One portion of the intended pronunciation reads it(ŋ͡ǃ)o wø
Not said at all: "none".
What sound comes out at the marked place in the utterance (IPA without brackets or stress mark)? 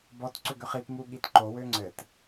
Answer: ǃ